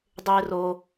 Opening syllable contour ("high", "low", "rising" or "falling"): high